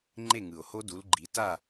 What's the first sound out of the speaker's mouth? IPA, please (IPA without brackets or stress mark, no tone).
ŋ͡ǃ